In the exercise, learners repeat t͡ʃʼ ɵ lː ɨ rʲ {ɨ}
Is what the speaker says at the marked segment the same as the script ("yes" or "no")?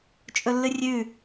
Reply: no